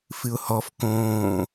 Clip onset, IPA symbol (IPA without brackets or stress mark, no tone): f